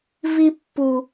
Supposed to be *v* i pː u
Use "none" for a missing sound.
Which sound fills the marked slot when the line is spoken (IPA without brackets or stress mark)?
v